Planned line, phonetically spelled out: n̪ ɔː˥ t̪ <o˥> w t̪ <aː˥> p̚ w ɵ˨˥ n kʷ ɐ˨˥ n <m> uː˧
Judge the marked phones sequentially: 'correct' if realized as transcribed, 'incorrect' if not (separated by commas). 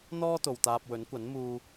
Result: incorrect, incorrect, correct